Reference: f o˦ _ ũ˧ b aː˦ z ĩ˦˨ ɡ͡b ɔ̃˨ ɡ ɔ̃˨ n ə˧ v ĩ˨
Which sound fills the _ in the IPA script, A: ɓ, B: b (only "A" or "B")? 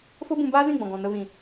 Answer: B